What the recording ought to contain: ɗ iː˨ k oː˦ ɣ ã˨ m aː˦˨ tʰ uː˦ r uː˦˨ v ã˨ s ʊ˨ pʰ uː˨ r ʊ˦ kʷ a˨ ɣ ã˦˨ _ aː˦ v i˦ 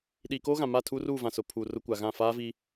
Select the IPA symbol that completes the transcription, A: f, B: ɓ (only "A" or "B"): A